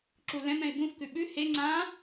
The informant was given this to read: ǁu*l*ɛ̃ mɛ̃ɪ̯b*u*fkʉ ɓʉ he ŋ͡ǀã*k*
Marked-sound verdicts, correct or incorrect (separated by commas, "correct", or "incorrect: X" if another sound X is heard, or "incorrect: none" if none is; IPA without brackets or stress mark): correct, incorrect: ũ, incorrect: none